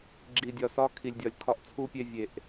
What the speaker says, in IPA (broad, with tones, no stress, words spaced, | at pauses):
ɡ͡ǁi˨dʲɒ˨sɒ˦ kʰi˨lʲdʲɒ˨lʲkʰɒ˦ʔ t͡sʰu˦pʲe˦ vʲe˨ʔ